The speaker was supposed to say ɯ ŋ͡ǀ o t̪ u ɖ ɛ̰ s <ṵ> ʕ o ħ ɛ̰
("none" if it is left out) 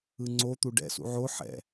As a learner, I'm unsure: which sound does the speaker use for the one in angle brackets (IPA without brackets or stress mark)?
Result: ṵ